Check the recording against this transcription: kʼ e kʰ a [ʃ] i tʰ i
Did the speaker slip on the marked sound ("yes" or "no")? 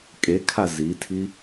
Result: yes